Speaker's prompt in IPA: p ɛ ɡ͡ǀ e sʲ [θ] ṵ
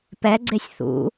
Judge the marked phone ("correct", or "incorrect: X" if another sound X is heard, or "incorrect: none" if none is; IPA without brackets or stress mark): correct